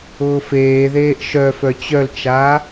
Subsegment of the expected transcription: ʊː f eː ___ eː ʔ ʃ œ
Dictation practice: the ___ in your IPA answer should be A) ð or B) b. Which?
A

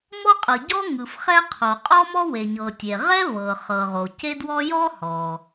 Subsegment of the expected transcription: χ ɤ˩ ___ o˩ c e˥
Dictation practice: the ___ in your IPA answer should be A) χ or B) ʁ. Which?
B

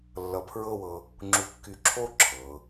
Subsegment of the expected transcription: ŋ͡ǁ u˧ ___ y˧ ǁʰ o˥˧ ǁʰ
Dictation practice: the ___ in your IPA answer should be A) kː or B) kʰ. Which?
A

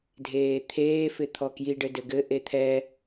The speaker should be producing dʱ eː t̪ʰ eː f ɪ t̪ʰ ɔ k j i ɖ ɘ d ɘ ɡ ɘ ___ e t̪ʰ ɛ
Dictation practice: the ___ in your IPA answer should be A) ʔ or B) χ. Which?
A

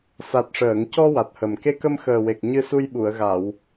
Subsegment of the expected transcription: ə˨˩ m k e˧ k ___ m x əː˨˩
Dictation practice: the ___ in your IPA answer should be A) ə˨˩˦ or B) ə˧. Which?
B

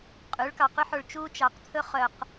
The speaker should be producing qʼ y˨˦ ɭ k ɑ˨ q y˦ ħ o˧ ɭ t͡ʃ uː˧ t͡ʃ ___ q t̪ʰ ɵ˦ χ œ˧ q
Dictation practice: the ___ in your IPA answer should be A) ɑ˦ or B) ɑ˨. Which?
B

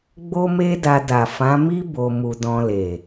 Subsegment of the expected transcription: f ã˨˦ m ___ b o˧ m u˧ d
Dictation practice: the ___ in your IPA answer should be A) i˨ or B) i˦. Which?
B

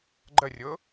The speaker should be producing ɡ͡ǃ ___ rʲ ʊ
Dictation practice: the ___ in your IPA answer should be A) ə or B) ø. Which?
A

